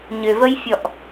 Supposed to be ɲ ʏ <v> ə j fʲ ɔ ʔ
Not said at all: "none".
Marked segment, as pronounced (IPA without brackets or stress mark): v